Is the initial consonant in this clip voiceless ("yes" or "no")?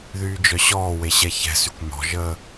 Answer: no